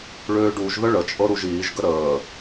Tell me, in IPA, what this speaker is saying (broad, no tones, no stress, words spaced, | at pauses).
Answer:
ɭøːɖuʒðə ɭət͡ʃʼɤ ɾuʒiːʒɡə ɾəː